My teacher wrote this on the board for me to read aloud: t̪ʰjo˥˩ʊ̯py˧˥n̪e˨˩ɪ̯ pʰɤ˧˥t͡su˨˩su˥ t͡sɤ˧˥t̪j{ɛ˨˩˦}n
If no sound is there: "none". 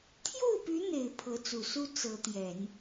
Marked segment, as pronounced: ɛ˨˩˦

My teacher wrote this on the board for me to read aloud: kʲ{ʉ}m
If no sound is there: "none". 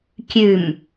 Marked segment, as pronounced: ʉ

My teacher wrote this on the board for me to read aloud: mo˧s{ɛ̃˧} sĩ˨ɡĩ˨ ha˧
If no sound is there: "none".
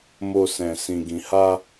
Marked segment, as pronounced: ɛ̃˨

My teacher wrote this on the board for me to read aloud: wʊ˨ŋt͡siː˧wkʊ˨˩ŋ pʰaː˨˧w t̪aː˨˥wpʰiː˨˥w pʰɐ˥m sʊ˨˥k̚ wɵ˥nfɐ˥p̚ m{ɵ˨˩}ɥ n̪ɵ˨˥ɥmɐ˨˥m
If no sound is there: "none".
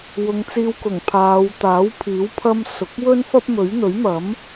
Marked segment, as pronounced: ɵ˨˥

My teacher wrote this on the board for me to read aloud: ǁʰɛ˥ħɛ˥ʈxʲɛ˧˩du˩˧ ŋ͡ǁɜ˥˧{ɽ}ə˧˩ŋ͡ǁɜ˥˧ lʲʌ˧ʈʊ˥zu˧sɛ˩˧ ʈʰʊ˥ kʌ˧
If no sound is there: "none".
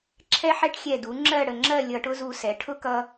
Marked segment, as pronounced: ɽ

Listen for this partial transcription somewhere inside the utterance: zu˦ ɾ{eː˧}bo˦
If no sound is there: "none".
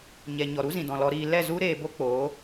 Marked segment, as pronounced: eː˧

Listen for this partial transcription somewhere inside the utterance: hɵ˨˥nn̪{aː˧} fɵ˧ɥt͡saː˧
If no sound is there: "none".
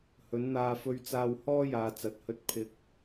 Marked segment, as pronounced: aː˧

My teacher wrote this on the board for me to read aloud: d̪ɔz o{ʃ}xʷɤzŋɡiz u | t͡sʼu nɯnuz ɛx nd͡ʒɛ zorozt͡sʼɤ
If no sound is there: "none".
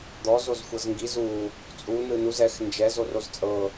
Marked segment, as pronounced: z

